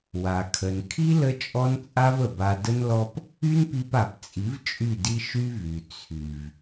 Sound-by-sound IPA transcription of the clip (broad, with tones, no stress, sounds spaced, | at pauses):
w a˨ kʰ ə˨ n kʰ i˦ l ə˦ t͡ʃʼ ɔ˦ n t͡sʼ a˦ v ə˨ b a˧ d ə˦ n l ɔ˦ p | y˦ n p i˧ p a˨ p t͡sʼ i˨˦ v t͡ʃʼ y˦˨ d i˦ ʃ y˦ v y˨ t͡sʰ y˨ v